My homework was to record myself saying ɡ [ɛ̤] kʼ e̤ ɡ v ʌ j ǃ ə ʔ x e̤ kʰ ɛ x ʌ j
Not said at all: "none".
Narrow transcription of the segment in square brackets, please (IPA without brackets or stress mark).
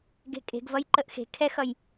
e̤